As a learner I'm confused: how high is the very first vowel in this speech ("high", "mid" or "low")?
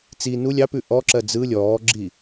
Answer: high